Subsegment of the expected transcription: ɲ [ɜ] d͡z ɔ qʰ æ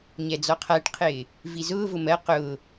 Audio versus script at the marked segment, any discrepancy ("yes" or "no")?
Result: yes